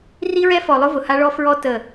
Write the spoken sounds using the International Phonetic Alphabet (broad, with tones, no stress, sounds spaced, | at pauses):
r i˦ ɹ ɛ˦ f ɔ˨ lˠ ʊ˦ v ʊ˨ h a˦ ɭ ɔ˦ f ɹ ɔ˦ t ə˦˨